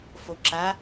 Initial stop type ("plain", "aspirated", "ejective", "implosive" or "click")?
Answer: click